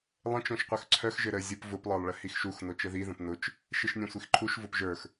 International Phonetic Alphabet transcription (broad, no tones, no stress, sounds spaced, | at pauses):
lˠ ə̃ t͡ʃ œ̃ ʃ qʷ œ x ǀʰ œ x ʒ ɘ ɾ ə zʲ ʊ p v ʊ p lˠ ə˞ lˠ ɭ ə h i x ʃ u x n o t͡ʃ ə ð i ð ə̃ p n ʊ t͡ʃ | ʃ i ʃ nʲ œ̃ sʷ i x ǃʰ u ʃ v ʊ p ʒ ə˞ x